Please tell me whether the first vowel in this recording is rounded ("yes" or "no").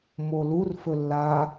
yes